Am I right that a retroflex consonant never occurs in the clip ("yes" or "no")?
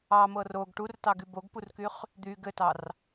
no